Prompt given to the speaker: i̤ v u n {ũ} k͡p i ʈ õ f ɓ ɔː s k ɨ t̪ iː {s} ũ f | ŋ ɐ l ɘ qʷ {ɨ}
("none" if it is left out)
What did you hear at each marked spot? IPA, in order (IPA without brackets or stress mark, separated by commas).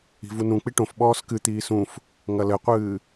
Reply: ũ, s, ɨː